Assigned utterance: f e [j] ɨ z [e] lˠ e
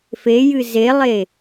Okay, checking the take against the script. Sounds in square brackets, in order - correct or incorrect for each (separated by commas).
correct, correct